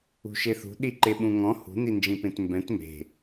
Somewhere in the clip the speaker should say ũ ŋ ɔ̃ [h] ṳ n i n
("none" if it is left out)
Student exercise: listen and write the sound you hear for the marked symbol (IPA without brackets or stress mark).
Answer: h